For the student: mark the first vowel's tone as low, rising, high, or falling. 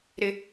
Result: low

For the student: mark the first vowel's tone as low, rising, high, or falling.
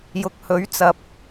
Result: low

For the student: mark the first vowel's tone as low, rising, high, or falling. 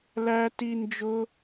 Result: high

